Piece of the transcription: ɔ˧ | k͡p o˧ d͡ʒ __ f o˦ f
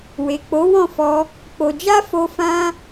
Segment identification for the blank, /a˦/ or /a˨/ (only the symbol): a˦